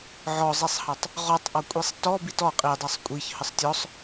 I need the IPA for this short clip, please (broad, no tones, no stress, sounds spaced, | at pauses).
ʕ ɔ zˤ i sˤ h ɑ tˤ | ʁ ɔ tˤ ʔ ɔ kʷʼ i sˤ t ɔ b i t ɔ qʼ i dˤ ɑ sˤ kʷʼ i ç h ə sˤ tʲ ɔ sˤ